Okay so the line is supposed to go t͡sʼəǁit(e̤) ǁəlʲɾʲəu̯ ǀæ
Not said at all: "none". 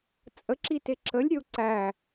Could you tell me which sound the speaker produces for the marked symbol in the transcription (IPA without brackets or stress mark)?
e